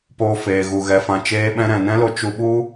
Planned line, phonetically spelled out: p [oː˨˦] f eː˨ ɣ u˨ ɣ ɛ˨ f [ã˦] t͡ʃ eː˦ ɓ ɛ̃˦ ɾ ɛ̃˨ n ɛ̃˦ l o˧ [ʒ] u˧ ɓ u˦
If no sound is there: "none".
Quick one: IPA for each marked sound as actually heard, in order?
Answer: oː˧, ã˨, t͡ʃ

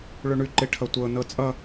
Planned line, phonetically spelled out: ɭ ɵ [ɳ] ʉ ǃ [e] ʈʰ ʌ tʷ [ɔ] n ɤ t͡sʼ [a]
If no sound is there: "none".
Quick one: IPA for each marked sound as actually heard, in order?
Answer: ɳ, e, ɤ, ʌ

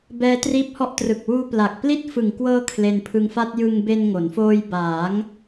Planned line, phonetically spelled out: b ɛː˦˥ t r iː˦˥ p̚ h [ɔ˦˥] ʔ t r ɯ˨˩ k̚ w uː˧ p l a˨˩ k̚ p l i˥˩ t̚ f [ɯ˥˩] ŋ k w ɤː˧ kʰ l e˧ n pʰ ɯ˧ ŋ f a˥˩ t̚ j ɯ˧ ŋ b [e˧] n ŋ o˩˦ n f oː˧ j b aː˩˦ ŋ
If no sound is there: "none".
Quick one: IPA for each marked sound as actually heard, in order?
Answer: ɔ˦˥, ɯ˨˩, e˧

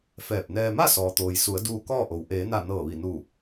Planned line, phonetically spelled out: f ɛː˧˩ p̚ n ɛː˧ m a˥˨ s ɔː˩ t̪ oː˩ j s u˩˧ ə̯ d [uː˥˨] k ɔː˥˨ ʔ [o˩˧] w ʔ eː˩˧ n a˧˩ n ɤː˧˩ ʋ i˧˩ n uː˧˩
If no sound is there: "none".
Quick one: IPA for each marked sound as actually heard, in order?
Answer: uː˧, o˩

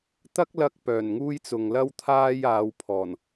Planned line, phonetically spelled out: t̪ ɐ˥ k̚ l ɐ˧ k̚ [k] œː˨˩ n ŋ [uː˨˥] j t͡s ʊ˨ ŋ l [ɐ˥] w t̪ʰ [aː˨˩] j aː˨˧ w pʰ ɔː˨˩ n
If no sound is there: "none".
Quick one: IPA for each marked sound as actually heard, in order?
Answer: p, uː˥, ɐ˥, aː˥

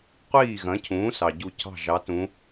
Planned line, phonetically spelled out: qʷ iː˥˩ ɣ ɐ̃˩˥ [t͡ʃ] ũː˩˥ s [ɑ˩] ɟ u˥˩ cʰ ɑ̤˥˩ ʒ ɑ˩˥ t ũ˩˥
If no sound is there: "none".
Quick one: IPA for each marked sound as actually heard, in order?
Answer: cʰ, ɑ˩

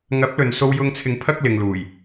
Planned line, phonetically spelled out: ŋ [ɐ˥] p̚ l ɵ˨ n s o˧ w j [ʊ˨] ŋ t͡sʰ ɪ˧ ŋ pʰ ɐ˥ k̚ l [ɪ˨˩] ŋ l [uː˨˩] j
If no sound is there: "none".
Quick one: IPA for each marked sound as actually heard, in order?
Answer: ɐ˨˥, ʊ˧, ɪ˨, uː˨˩

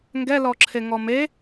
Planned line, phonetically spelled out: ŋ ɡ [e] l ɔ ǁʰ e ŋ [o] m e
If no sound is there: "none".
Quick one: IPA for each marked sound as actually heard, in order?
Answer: ɛ, ɔ

